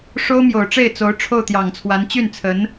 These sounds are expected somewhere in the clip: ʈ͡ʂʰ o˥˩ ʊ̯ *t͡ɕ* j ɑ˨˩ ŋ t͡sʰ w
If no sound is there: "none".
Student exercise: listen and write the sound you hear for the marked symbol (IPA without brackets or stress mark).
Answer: t̪